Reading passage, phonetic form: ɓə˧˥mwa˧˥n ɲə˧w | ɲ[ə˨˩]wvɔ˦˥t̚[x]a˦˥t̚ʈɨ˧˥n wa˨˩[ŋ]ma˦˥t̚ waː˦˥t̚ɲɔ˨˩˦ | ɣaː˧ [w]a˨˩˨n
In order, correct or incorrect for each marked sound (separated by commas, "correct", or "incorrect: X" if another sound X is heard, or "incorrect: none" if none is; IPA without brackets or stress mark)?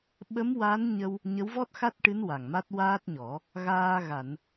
incorrect: ə˧˥, correct, correct, incorrect: ɣ